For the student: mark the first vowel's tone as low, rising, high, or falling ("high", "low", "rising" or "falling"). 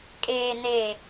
low